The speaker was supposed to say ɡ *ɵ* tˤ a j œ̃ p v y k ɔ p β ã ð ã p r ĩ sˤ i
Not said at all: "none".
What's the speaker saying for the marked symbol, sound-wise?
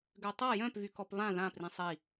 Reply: ø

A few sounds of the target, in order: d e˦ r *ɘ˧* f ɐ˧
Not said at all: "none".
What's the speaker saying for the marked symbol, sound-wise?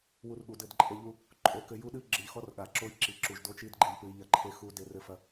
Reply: ɘ˧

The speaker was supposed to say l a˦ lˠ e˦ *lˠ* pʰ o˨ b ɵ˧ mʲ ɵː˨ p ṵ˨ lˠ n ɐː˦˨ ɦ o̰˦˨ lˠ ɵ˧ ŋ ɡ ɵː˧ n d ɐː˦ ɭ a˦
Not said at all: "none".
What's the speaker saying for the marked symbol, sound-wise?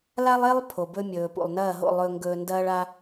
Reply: lˠ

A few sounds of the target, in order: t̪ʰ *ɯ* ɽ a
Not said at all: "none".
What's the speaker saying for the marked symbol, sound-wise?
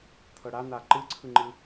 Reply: ɤ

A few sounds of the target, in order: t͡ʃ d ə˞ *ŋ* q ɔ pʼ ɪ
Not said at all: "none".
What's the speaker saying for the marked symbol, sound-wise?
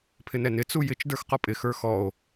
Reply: x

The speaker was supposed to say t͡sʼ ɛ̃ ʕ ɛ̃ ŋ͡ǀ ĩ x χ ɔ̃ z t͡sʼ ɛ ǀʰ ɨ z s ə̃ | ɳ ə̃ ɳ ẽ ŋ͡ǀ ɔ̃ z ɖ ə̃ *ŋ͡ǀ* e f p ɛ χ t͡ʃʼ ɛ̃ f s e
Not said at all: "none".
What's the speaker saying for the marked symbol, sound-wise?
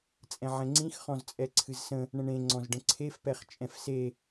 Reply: ǀʰ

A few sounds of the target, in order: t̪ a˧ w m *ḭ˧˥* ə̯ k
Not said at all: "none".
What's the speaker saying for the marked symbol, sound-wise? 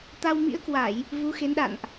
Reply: ḭ˧˥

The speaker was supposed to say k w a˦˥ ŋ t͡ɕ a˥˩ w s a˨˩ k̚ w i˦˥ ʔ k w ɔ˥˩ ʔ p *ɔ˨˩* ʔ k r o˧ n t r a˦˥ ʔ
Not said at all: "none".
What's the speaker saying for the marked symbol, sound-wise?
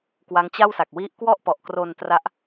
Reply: ɔ˨˩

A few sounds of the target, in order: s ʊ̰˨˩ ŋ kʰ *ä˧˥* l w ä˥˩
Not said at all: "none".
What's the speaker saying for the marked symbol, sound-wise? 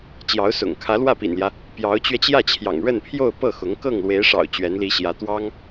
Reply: ä˧˥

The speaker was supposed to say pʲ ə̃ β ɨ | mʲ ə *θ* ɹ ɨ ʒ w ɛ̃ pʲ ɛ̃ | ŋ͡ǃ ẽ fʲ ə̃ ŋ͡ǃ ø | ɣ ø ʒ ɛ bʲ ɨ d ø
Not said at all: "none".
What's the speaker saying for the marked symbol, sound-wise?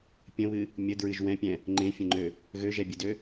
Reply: d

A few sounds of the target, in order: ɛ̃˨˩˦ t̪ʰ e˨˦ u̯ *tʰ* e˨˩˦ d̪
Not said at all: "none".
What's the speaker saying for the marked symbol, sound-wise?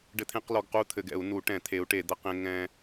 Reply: ʈ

